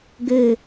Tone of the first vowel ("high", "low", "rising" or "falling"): low